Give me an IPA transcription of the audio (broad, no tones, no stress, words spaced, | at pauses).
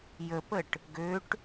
jəpəʈ | ɡøʈ